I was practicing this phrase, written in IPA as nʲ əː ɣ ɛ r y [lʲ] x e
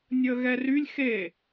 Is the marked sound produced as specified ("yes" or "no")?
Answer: yes